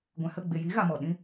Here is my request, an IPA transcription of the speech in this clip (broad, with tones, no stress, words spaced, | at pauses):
ɡʷɛ̃˨hə˦˨ ɡ͡be˨ji˨˦ɣa˨ mɔ˨ɗĩ˦